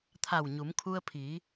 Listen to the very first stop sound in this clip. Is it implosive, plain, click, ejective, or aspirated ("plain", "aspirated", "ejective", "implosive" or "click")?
aspirated